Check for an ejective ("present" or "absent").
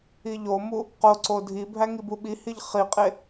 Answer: present